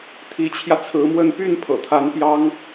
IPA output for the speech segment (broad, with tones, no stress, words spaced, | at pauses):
t̪ʰi˧˥t͡ɕʰjä˧t͡sʰɹ̩˧˥mwə˥˧n py˥˩npʰɤ̰˨˩t̪ʰa˧˥n pjɑ˥ŋ